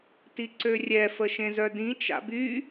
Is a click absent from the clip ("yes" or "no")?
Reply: no